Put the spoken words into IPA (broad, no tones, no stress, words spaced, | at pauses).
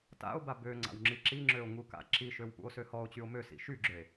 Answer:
ta̰o̯ba bø ŋ͡ǀa̰wŋ͡ǁiǁiŋ͡ǁøo̯ ŋuka̰ǁiʃøw pṵo̯søhɔo̯t͡ɕyo̯ møsḭ ʃyɡ͡ǁøe̯